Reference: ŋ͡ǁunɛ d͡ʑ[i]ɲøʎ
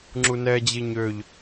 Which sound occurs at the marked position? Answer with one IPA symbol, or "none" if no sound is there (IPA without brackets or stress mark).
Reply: i